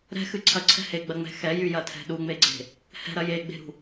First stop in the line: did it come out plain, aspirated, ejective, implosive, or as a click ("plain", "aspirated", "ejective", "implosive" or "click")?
click